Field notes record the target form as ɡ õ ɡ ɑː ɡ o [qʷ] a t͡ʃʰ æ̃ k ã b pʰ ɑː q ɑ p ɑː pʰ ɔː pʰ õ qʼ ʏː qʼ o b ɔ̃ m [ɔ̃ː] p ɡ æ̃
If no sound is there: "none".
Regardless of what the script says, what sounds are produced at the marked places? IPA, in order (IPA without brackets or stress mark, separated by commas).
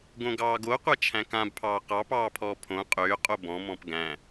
qʷ, ɔ̃